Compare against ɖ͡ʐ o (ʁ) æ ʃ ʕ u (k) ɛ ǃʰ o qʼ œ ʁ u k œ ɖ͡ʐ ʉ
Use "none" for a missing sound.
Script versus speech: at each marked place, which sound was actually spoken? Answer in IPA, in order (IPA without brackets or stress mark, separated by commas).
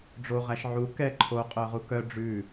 ʁ, k